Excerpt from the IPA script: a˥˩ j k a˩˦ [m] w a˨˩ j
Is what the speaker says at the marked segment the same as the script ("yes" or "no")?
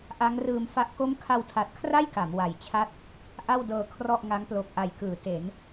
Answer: yes